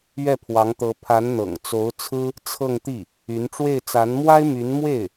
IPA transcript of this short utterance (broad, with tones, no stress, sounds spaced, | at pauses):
ɥ ɛ˥˩ pʰ w ɑ˧˥ ŋ t̪ ɤ˧˥ pʰ a˧˥ n n̪ ɤ̰˨˩ ŋ t͡s o˧˥ ʊ̯ t͡sʰ ɹ̩˥ | t͡sʰ ɤ˥˧ ŋ t̪ i˥˩ | y˧˥ n ʈ͡ʂ w e˥˩ ɪ̯ t͡s a˧˥ n m w a˥ ɪ̯ m y˧˥ n m w e˥˩ ɪ̯